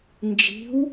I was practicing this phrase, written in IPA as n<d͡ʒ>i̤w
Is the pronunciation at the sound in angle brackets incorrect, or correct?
correct